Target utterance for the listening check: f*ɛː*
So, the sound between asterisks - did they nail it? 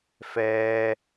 yes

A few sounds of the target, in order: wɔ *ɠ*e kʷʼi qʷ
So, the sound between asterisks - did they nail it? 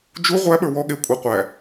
yes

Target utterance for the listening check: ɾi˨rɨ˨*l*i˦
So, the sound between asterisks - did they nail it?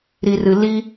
yes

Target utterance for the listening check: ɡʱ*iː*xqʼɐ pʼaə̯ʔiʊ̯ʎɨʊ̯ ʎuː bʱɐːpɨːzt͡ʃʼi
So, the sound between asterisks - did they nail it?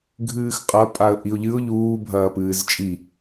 no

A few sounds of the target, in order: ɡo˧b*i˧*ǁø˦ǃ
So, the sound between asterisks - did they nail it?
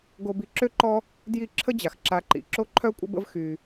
yes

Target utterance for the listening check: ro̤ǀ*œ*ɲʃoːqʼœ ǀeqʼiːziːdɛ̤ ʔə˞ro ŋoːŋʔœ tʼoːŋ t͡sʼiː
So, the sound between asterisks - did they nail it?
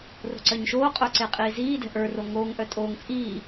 yes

